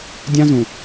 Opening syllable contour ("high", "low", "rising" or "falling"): high